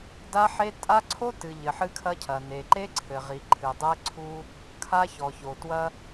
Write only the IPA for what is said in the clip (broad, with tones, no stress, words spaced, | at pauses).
da˦ħe˦ tʼa˦ ǀʰo˦tɨ˨ ʎɘ˨ħɨ˦kʰɐ˦cʰɐ˨ ne˨ǃe˦ǀʰɘ˨ ʁi˨ǃʰɨ˨dˤɛ˦ ǀʰu˦ | kʰa˦çɔ˨ço˨twɐ˦